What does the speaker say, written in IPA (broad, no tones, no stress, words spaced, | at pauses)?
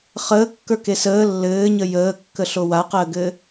χəːkːə˞ke səː lːɘːɲə jəːkːəɬo waqəːɡɘː